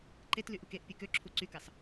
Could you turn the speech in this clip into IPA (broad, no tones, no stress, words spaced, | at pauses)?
ǃetlyʔuk eʔpʲɯ køǁʰu ǀykɑs